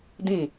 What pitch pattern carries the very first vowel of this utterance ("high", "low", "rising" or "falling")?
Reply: falling